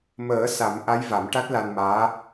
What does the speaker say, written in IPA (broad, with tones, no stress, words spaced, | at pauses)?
məː˨˩˦ sa˨˩˦mʔa˧˥j va˨˩˦mʈa˦˥t̚la˧nmaː˧˥